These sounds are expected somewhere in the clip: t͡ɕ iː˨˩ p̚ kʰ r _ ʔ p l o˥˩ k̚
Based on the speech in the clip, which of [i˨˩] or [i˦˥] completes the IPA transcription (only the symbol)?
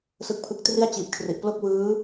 i˨˩